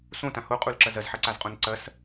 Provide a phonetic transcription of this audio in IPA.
s õ t ã h o qʼ u l ǁ ɐ z ɐ z ħ ɐ ǀ a z qʼ õ n ǀ ɐ s

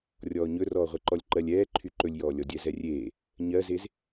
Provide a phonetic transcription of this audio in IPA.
rʲ ɔː ɲ ɵ r ɔː ʁʷ ɛ ǃ ɔ lʲ ǃ ɜ lʲ ɛː ǃʰ y ǃ ɵ lʲ j ɔː lʲ ɔ dʲ ɛ z ɛ rʲ eː | ɲ ɜ z e z

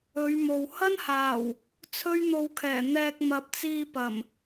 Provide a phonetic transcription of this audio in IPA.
ɵ˨˧ ɥ m o˨ w h ɐ˥ n h aː˨˩ w | t͡sʰ ɵ˥ ɥ n̪ o˧ w kʰ ɛː˨˩ n̪ ɛː˧ k̚ m ɐ˨ p̚ t͡s iː˧ p ɐ˨˩ m

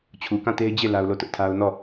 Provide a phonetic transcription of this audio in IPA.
t͡ɕʰ u˨ k ã˦˨ t e˦ ɪ̯ d͡ʑ e˦˨ l a˦ ʊ̯ l o˦˨ t ʊ˦ ʔ tʰ a˦ ʊ̯ n ɔ˦˨

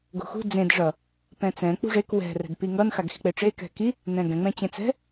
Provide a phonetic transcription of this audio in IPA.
ɡ o̤ x ṳ d͡z ẽ d ʐ ʌ | p ɛ̃ t͡s ɛ̃ k͡p ṳ ʐ e k w ɛ̤ r ɛ̤ d p i ŋ ʌ n x a ɡ x i̤ k͡p e ʈ͡ʂ e k ɛ̤ k i | n ɛ̃ ɡ ɛ̃ ŋ͡m ɛ̃ t͡ɕ ẽ t͡s ɛ̤

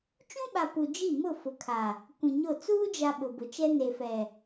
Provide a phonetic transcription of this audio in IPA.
t͡ʃ ũ˦ ɓ a˨ p u˨ d͡ʒ i˦˨ m ʊ˦˨ f ʊ˨ kʰ a˨ | kʷ ĩ˨ ɲ o˦˨ t͡s uː˦ d͡ʒ a˨ ɓ ʊ˨ b ʊ˨ t͡ʃ ɛ˦ n e˨ f ɛ˨

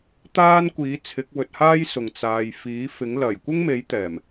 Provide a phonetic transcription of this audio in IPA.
t̪ aː˥ n kʷ iː˨˥ t͡sʰ ɪ˨˥ k̚ w ɵ˧ t̚ h aː˥ j s ʊ˨ ŋ t͡s aː˨ j f iː˨˥ f ɪ˨˥ ŋ l ɐ˨˩ j kʷ ɪ˥ ŋ m e˨˥ j t̪ ɛː˨˩ m

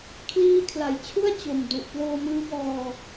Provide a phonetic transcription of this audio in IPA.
kʰ l iː˧ kʰ l a˩˦ j t͡ɕʰ u˥˩ a̯ t͡ɕ o˨˩ m d u˨˩ ʔ p l oː˧ m ɯː˦˥ b ɔː˧

